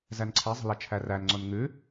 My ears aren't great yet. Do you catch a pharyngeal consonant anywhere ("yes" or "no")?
no